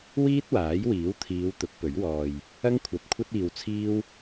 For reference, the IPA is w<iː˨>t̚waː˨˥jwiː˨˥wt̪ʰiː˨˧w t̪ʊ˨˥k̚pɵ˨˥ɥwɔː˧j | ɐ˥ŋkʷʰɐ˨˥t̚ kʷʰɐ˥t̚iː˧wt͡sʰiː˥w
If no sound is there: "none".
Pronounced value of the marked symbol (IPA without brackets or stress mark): iː˥